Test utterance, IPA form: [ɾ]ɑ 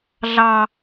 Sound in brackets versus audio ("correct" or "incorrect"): incorrect